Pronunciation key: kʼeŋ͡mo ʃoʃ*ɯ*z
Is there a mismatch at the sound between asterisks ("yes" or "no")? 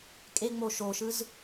no